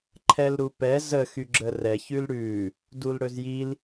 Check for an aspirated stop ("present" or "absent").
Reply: present